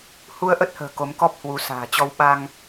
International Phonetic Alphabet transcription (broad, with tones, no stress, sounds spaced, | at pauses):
h u˧ ə̯ ʔ ə˦˥ t̚ h ə̤ː˨˩ k o˨˦ m k ɔ˦˥ p̚ h w u˨˦ s a̤ː˨˩ t͡ɕ ɔ˧ w ɓ a˧ ŋ